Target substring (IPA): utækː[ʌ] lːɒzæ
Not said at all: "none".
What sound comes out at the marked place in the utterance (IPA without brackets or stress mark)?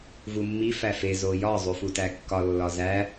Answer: ɒ